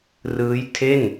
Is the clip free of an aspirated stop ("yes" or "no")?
no